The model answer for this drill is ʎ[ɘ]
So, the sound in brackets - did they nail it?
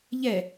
no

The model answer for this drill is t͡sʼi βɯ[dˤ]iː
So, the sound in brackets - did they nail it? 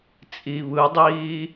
yes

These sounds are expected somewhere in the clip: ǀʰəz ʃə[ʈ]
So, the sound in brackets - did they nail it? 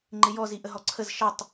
no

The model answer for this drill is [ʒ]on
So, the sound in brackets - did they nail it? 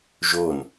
yes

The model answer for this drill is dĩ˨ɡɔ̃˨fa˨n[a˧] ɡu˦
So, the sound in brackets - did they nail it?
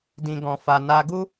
yes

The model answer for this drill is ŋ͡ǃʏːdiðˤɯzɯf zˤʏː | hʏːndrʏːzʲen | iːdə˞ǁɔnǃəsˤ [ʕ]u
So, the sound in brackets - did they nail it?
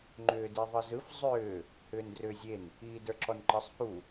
no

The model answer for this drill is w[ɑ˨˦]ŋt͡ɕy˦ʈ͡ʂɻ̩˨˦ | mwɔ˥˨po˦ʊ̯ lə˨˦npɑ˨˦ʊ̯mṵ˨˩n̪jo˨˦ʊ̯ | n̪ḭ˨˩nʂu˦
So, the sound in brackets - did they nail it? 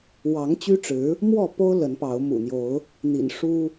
yes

